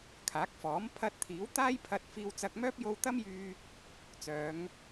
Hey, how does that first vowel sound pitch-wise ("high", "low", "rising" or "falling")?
rising